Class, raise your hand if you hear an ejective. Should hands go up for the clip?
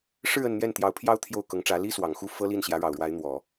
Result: no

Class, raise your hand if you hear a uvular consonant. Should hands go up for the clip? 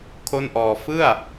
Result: no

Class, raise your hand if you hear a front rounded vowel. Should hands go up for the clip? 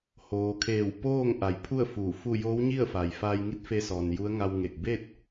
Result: no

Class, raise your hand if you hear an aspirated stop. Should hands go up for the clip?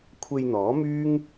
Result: yes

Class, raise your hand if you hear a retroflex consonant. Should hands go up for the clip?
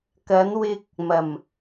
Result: no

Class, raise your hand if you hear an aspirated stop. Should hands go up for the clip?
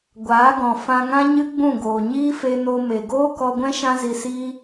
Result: no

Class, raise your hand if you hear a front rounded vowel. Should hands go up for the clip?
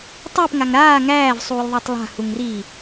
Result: no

